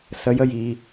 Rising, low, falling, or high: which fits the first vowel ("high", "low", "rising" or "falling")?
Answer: rising